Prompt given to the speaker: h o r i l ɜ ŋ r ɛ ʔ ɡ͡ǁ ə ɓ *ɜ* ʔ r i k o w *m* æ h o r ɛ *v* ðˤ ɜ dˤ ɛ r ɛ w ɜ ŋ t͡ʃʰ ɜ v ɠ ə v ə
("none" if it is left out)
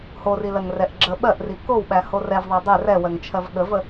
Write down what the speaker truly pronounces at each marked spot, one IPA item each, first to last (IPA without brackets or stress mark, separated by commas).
ɜ, ɓ, v